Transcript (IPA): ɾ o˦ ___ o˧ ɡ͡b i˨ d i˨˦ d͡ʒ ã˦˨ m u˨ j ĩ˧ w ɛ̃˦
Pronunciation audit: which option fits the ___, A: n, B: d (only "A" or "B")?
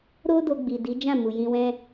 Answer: B